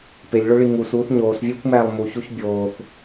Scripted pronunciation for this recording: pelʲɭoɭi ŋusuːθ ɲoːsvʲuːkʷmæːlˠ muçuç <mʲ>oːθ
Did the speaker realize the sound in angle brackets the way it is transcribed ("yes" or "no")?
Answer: no